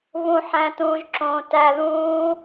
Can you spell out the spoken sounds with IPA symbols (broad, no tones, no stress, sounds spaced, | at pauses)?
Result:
β ũ ħ æ̃ t ũː ʒ ǁ õː t æ ð ũː